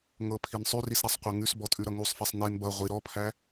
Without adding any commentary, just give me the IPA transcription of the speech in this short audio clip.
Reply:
ŋɤpʰin sˤʉrisɾasˤqʷɤ ŋʉsbɔtʼʉɾʌ ŋusˤfɛsˤ nen bʌ ʁʷi ɾɔpʰæ

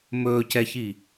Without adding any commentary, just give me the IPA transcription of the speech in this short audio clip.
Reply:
mɵːcɛçi

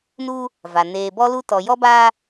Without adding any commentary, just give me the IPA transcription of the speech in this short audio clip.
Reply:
nuː˦ | va˨ neː˨bɔ˦lu˦ tɔ˨jɔ˦baː˦

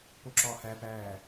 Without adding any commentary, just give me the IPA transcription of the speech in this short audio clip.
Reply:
poǁɒːhæ pæː

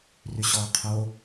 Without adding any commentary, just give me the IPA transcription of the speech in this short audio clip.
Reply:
ryɕɔːqʰo

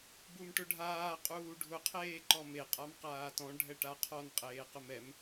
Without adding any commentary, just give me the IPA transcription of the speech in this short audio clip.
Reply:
bumʈʊɖʱaː qʼuːɖʱʊ qʰeːǃɔme qʼamqaːtɔ̃ ɖʱɛʈaqʰɔn qʼeːqʊmɛm

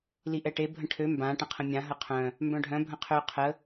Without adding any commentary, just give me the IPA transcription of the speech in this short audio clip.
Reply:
liʔɛʈe bʱə̃ʈʰø mbã ʈə̃qʰə̃mʲã ɦəqʰœ̃ | mbœ̃ɖʱœ̃ bʱə̃qʰø qʰə

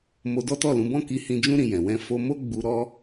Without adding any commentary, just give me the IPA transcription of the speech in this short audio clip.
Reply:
mo˧dɔ˦tɔ˦˨lũ˨˦ bɔ̃˦˨ki˧ hĩ˧d͡ʒũ˦ ɾĩ˧jɛ̃˨ wɛ̃˧ fo˧mo˦ ɡ͡bu˧ɾɔ˦

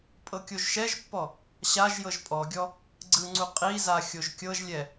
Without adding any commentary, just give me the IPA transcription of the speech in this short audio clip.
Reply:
pʼɤkʲoʒʃɛʒpːɔ | ɕaʒ jɤʒpʼɔɡʲɔ | ɡ͡ǀɯŋ͡ǀu qʼiza xʲoʒkʲɤʒlʲɛ

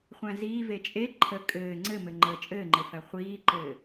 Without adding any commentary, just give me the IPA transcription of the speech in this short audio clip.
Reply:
χʷæ̃ziː vet͡ʃʼe ǃʰə kʼɘː ŋ͡ǀɘmɘŋ͡ǃəː t͡ʃʼɘːŋ͡ǃɘfæ χʷiːǃɘː

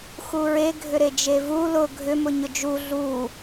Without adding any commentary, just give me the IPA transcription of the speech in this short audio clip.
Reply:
xuɹeɡʱʏ ɾed͡ʒevu lʊ ɡʱʏmʊ ɲʊd͡ʒu ɮu

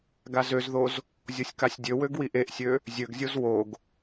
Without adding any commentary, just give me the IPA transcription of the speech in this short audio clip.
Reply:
ɡazøzðoz | zʲosʲkasʲdʲø wøɡwiʔeʔsʲø | zʲøɡzʲoz woɡ

